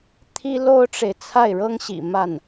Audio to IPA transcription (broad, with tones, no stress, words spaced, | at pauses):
t̪ʰi˥lo˥ʊ̯ʈ͡ʂe˨ɪ̯ t͡sʰa˥˩ɪ̯ɻɤ˥ŋɕḭ˨˩ ma˥˩n